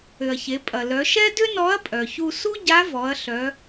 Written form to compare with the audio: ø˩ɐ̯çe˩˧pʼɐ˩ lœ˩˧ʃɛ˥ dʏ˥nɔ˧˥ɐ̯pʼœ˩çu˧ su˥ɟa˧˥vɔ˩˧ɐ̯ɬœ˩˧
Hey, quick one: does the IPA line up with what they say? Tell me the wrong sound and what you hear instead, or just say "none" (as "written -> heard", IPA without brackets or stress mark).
none